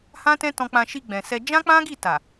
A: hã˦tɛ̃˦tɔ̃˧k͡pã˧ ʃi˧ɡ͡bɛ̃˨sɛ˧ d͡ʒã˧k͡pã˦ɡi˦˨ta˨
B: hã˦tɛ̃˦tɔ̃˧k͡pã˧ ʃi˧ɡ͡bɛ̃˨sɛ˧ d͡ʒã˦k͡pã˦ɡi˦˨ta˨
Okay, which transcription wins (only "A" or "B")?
B